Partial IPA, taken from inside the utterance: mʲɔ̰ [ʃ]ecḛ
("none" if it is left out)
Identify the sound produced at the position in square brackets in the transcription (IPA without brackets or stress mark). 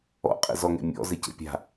z